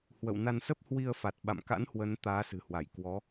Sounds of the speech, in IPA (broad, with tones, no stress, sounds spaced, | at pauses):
h w ə̰˧˨ w n a˧ n s ə˦˥ p̚ h w i˧ ə̯ f a˨˩ t̚ ɓ a̰˧˨ m k a̰˧˥ n h w ə˨˦ n t̪ aː˨˦ s ɨ̤˨˩ h w a˧˩ j k w ɔ˨˦